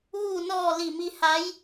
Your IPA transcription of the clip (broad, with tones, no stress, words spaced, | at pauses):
ʋuː˧˩nɔː˧˩ li˧˩mi˧ ha˧˥j